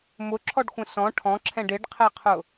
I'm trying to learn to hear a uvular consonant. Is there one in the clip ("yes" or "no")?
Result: yes